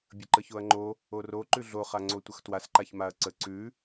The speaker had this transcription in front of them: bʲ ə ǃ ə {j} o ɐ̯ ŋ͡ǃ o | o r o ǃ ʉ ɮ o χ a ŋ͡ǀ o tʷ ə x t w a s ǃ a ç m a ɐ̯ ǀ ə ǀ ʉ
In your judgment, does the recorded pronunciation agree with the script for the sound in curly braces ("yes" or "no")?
no